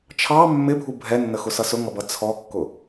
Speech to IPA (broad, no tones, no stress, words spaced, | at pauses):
t͡ʃʰɑ mːɪbʱu bʱɛnːəxʊsʌ sʊŋʌbʌ t͡sʰɔkːʊ